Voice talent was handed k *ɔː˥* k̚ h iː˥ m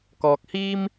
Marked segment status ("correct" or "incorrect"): incorrect